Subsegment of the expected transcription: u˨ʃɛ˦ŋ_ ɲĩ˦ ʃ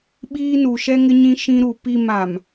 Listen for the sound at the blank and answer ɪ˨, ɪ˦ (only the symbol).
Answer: ɪ˦